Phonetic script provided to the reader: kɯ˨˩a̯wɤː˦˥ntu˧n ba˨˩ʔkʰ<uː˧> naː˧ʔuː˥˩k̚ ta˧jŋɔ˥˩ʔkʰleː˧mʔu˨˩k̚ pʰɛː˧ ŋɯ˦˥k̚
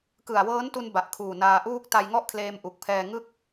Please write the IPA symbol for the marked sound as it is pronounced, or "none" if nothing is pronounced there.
uː˨˩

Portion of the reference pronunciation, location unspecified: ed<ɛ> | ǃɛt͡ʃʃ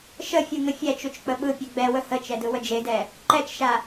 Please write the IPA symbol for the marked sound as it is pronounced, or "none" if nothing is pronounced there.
ɛ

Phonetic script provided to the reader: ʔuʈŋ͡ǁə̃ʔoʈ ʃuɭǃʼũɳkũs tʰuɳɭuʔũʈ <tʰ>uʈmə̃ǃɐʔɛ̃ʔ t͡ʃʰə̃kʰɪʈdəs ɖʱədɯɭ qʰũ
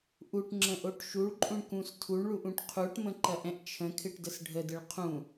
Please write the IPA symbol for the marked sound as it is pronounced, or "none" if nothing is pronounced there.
qʰ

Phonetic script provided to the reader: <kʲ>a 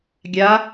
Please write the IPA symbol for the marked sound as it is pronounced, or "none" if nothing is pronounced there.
ɡʲ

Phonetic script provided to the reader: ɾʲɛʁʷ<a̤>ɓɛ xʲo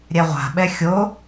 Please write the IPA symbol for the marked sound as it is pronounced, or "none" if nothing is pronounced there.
a̤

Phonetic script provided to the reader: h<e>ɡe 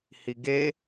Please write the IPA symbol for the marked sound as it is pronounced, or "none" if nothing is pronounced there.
i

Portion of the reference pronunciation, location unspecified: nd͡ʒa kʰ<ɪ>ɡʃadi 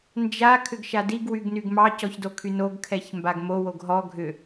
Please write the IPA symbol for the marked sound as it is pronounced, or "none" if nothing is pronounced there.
ʏ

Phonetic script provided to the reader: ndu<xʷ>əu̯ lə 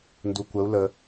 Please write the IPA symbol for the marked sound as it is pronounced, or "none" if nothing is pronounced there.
kʷ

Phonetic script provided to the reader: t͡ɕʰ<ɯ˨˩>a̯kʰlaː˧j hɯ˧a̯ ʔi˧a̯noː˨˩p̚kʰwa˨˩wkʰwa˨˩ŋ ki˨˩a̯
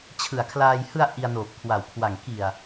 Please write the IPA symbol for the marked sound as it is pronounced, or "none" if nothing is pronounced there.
ɯ˨˩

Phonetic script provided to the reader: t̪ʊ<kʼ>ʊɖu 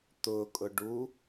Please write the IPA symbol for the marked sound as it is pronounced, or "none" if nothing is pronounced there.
kʼ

